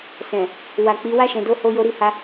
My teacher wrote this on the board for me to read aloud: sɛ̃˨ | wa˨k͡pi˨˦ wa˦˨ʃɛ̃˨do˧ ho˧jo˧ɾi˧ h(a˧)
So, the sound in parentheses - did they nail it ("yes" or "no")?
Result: yes